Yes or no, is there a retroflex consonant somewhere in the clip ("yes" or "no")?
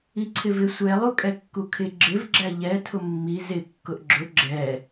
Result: no